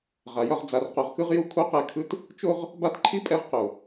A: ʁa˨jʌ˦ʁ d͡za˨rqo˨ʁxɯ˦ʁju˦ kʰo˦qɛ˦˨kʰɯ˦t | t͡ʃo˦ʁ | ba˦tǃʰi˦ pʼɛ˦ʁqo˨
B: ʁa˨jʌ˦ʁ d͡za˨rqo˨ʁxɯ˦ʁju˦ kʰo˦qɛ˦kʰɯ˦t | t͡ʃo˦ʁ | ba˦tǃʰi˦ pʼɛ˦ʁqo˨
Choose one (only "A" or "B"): A